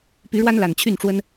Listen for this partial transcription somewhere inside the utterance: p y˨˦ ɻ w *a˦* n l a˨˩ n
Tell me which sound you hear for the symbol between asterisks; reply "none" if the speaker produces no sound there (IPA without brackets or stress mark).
a˦